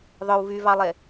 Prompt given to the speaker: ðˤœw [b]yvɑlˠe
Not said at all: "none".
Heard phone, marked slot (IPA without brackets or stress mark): v